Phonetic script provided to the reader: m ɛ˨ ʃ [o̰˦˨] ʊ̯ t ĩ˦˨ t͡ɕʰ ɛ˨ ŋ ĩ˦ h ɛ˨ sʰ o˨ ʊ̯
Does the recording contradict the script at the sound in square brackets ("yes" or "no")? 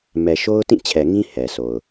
yes